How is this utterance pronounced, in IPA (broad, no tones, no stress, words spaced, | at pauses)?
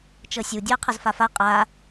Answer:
t͡ʃɤsʲu dʲɔə̯qʰɤzfafa qʼa